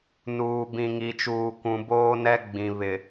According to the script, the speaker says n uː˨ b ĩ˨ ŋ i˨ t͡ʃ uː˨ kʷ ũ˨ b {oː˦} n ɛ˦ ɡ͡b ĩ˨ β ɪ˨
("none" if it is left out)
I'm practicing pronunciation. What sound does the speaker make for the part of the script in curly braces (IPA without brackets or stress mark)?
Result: oː˦